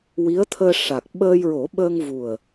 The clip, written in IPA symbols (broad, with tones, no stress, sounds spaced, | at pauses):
w i˧˥ ə̯ t̪ʰ əː˧ ʂ a˨˩ k̚ ɓ əː˧ j ɹ o˨˩˦ ɓ ə˧ ŋ v u˨˩ ə̯